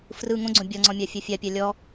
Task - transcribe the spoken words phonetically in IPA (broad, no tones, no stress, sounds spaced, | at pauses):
f r ɯ ŋ õ ɡ͡ǀ õ bʲ ɔ ŋ͡ǀ ɔ̃ mʲ a fʲ ɐ fʲ a pʲ a lʲ ɔ